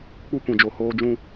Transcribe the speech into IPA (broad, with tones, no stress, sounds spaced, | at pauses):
k͡p u˦ kʷ ĩ˨ d͡ʒ o˨ h oː˧ d͡ʒ ũ˧